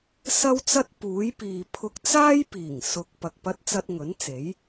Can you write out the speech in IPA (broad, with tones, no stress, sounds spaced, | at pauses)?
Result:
s ɐ˥ w t͡s ɐ˥ t̚ p uː˨˥ j p iː˨ pʰ ʊ˧ k̚ t͡s aː˥ j p iː˨˩ ŋ s ʊ˨ k̚ p ɐ˨ k̚ p ɐ˧ t̚ t͡s ɐ˧ t̚ ŋ ɵ˨˥ n t͡s e˨˥ j